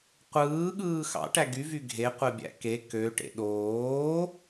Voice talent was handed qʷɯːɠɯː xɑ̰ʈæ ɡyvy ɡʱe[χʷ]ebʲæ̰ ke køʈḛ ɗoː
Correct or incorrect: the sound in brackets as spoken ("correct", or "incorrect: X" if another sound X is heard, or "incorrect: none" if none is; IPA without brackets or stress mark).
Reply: incorrect: qʷ